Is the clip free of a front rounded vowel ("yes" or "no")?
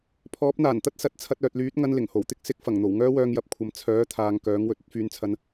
no